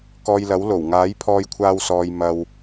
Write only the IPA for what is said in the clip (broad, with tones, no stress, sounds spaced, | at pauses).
k ɔː˧ j l ɐ˨˥ w l o˨˩ w ŋ aː˨˥ j pʰ ɔː˧ j kʷʰ aː˧ w s ɔː˨ j m ɐ˨ w